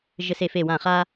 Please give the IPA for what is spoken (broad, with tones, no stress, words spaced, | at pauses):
ʒɘ˥se˥˧fe˥˧wã˥˧ χa˥